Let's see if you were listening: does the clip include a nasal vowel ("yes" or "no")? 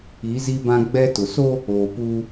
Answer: yes